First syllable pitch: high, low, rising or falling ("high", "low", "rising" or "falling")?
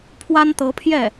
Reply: high